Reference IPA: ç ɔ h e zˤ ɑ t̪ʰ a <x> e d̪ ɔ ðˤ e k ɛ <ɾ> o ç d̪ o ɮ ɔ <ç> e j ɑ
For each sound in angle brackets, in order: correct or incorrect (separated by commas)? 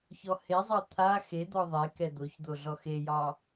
correct, incorrect, incorrect